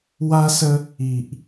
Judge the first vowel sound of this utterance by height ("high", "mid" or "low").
low